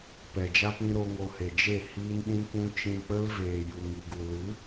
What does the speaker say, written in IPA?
p ɛ˨ d͡ʒ a˦ p ĩ˧ ɾ o˦ ŋ o˧ h e˨ d͡ʒ e˦˨ h iː˦ n ɗ ĩ˦ kʷ ũ˦ t͡ʃ ĩ˧ k͡p ə˦ l v eː˨ j u˨ ŋ i˨ ɡ u˨ l ɨ˨˦

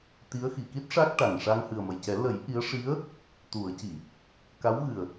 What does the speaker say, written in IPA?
t̪ i˧˥ ə̯ x i˨˩˨ k i˦˥ t̚ ʂ a˦˥ k̚ ʈ a˨˩ ŋ ʂ a˧ ŋ h ɨ˨˩ ə̯ m ə˨˩ j c ɛ˨˩˦ l ə˨˩˦ j ʔ i˧˥ ə̯ ʂ i˧˥ ə̯ | t̪ u˨˩˦ ə̯ c i˨˩˨ | k a˧˥ w ɣ ɨ˨˩ ə̯

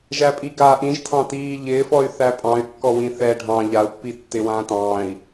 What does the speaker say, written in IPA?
ʒ æ pʼ i ɡ aː ʔ ĩ ʒ tʰ ɑ̃ t iː ʎ ɪː f ɔ y̯ θ æ pʼ ɑ̃ y̯ kː ɔ w ĩ θ ɛ ɖʱ ɑ̃ ʎ a u̯ pː i tː ɪ w ãː t ɑ̃ː i̯

